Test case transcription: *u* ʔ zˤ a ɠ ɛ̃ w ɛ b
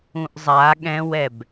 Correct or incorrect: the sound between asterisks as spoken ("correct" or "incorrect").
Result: incorrect